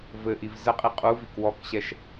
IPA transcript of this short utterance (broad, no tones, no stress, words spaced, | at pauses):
vɘʔiv zəqʼi qʼuvik wɔkɕɛʃ